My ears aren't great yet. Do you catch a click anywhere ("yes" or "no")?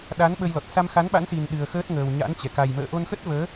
no